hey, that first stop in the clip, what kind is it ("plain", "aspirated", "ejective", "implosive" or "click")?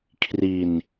aspirated